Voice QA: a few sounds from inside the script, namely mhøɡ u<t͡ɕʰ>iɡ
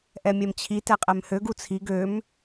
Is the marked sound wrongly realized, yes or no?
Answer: yes